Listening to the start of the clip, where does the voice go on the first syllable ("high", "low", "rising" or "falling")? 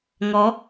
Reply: rising